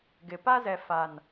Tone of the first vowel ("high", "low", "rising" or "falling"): low